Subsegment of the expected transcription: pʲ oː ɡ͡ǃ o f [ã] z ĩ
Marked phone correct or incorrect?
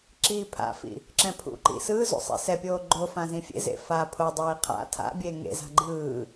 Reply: correct